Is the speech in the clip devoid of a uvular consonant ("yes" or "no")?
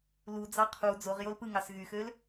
no